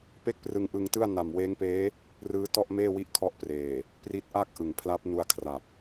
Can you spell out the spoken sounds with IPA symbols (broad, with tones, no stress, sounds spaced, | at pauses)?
p e˥˩ k̚ p r ɯ˧ ŋ ʔ ɯ˧ ŋ t ɯ˥˩ a̯ n a˨˩ m w eː˦˥ ŋ p eː˦˥ | r ɯː˦˥ t ɔ˥˩ ʔ m eː˥˩ w i˥˩ ʔ kʰ ɔ˦˥ ʔ p r eː˨˩ | p r i˦˥ t̚ ʔ a˥˩ k̚ ʔ ɯ˩˦ ŋ pʰ l a˦˥ p̚ n u˧ a̯ kʰ r a˨˩ p̚